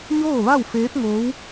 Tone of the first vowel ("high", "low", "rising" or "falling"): falling